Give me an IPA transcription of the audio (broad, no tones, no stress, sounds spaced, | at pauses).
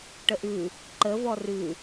ʈ ə ʔ ʉ | ǃ ə v ɔ r ʉ